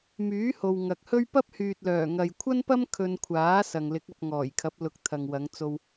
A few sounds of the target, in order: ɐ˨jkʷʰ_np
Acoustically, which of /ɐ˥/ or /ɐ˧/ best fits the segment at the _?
ɐ˥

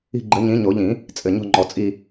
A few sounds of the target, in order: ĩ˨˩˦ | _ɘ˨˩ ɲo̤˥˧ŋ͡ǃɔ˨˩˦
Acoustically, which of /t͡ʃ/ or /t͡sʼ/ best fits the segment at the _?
t͡sʼ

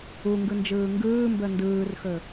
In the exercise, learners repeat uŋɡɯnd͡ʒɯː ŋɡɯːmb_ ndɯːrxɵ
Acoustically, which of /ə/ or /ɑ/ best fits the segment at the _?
ə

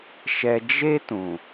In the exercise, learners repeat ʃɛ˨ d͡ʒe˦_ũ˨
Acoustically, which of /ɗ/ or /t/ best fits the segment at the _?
t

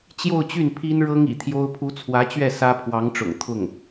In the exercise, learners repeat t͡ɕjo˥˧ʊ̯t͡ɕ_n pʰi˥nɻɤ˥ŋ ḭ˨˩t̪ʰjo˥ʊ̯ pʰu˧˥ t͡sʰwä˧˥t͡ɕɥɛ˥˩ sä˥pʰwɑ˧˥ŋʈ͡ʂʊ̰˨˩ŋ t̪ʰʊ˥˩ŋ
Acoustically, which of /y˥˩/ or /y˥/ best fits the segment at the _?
y˥˩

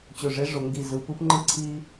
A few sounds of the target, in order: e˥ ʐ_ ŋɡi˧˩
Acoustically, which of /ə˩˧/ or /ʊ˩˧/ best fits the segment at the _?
ʊ˩˧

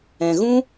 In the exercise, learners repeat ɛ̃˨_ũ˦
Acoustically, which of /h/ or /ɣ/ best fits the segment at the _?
ɣ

